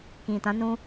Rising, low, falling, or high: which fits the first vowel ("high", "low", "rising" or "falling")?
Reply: low